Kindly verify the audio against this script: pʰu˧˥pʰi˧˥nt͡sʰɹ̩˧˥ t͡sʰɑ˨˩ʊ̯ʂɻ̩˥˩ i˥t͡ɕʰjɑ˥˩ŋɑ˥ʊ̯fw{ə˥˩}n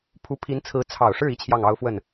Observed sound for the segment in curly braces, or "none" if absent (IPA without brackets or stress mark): ə˥˩